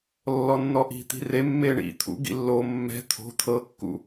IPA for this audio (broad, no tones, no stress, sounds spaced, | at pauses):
lː ɔ nː ɔ ʔ i̤ t̪ i̤ r e mː e ɳ ḭ t̪ʰ ṵ ɡ ḭ lː o mː ɛ̤ t̪ʰ o̤ t̪ʰ ɤ kː ṵ